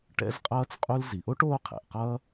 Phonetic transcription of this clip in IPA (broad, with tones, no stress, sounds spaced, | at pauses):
ʈ ɛ̰˥ z qʼ ʌː˥ t͡s qʼ u˥ l z i˩ ʔ o˥ ʈ oː˥ qʰ ɛ̰˩ ʔ q ʌː˥